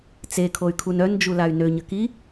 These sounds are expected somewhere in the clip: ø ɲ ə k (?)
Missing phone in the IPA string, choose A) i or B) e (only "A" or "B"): A